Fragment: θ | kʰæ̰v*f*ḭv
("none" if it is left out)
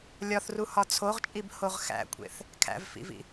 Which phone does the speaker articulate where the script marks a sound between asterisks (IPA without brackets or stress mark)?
f